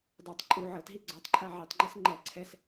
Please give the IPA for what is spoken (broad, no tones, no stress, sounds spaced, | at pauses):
dˤ ɛ tˤ ǃʼ u ʕ ɤ t ɦ i ɡ͡ǀ ɔ tˤ ǃʰ a ʕ i tˤ ŋ͡ǃ i s ŋ͡ǃ ɛ ǀʰ ɛ s